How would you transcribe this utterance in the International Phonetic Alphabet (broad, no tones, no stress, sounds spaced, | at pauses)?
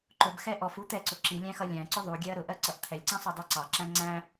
ǃ ʊ b x ɛ ʔ ɔ f u t̪ ɛ ǀ ʊ ǁ i lʲ æ̃ x ʌ lʲ æ̃ ǀ ʊ ðˤ u ɡʲ ɛ ɐ̯ ɾ ʊ ʔ ɜ ǀ ʌ ʔ t̪ʰ ɛ lʲ ǀ ĩ sˤ u dˤ i ǀ ɑ ǁ æ̃ ŋ͡ǀ æ̃